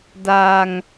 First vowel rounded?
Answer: no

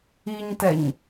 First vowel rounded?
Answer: no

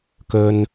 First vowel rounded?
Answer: yes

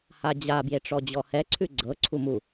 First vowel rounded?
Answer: no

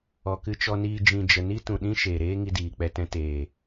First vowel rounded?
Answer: yes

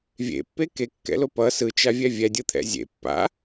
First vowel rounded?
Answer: no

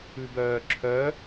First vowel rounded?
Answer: yes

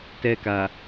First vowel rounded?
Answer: no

